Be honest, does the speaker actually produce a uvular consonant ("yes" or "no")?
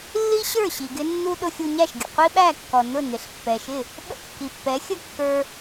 yes